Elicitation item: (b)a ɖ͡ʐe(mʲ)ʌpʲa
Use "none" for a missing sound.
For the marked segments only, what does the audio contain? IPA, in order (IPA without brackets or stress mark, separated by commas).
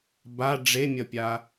b, mʲ